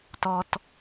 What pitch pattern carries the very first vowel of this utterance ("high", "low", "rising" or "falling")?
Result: low